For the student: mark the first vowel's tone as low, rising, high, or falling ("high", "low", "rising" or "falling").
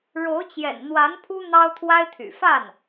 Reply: rising